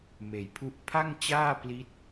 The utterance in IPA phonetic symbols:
meː˩˦jpʰu˦˥ʔ pʰa˥˩ŋt͡ɕaː˥˩pli˦˥t̚

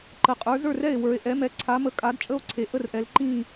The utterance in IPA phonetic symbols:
ǃə˩˥qʼə˞˩˥ zə˞˥˩rɛ˥˩e̯wə˞˩˧e̯ʔɛ˩˥ mɛ˩˥ǀʰa˩˥mə˩˧ kʼa˩˥dt͡ʃʼə˥˩o̯ǀʰe˩˧ ʔə˥˩rʔɛ˩˧lǃĩ˥˩

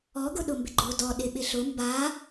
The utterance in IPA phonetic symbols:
ɔɡʊɗʊmbɪ ɡ͡ǃodɔ ɗɪɓɪɬʊ mba

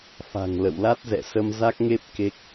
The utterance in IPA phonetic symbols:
fa̤˨˩ŋ lə̰˧˨w la˦˥t̚zɛ̰˧˨ sə˧mza˦˥k̚ŋe˦˥p̚ ke˦˥k̚

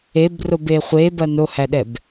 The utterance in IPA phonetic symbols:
ebrobe χʷebɐ nohæɗɛb

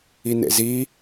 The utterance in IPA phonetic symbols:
inḛzi

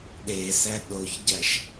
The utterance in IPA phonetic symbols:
ɗesæ ɗoçɟæʃ

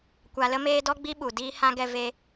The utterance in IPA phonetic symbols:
kʷa˧lə˦meː˦ dɔ˦ɡ͡bi˦ɓu˨ diː˦hã˦ ɡɛ˧ve˧

